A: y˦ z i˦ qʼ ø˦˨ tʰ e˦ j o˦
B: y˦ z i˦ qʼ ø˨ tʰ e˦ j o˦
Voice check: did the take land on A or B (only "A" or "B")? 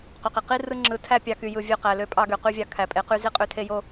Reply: A